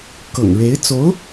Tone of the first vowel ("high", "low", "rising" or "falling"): low